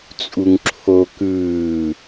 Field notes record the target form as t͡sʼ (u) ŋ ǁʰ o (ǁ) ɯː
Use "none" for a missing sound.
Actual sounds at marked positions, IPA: u, k

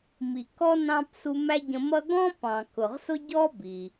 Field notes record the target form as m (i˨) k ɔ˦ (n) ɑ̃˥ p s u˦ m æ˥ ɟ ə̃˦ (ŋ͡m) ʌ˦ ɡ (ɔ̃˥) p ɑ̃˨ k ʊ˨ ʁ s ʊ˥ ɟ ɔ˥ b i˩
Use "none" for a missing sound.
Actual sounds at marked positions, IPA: i˨, n, m, ɔ̃˥

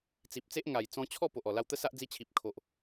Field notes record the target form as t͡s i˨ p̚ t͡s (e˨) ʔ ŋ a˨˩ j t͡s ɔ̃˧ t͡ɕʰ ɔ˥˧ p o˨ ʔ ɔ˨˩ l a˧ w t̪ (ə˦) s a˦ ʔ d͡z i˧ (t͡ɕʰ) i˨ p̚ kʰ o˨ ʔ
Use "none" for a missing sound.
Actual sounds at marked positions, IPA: e˦, ə˦, t͡ɕʰ

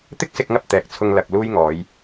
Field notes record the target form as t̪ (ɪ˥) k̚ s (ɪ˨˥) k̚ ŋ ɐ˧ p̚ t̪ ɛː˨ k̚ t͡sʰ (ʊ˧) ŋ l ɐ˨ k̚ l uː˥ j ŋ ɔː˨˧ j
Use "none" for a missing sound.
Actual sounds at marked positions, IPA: ɪ˥, ɪ˧, ʊ˧

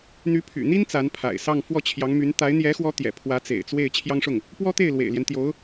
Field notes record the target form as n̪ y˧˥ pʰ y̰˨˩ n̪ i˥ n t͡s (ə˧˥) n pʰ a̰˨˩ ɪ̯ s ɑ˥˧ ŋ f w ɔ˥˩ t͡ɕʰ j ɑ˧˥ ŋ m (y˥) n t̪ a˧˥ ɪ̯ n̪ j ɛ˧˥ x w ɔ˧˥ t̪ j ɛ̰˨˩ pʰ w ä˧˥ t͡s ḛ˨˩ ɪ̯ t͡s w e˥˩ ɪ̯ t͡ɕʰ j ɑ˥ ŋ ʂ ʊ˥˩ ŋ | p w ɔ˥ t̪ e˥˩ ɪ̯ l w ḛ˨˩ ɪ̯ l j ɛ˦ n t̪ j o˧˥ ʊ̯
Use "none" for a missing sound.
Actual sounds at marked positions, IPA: a˧˥, y˧˥

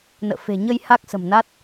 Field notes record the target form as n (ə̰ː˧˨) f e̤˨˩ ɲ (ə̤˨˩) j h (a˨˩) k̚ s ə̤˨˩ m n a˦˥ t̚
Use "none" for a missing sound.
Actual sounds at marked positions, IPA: ə̰ː˧˨, ə˧, a˦˥

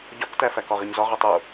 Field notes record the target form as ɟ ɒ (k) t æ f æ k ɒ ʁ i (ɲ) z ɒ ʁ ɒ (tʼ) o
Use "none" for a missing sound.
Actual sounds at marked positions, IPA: k, ɲ, tˤ

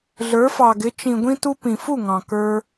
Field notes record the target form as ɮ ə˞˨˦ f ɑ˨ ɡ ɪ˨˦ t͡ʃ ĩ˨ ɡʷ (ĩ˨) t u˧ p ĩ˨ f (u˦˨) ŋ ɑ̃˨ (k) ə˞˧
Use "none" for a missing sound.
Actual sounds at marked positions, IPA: ĩ˧, u˦˨, k

